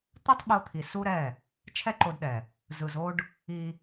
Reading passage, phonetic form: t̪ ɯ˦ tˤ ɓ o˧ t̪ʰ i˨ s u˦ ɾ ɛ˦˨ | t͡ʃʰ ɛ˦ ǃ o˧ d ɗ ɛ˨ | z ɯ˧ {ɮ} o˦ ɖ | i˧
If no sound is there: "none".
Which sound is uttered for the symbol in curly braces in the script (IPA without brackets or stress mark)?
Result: z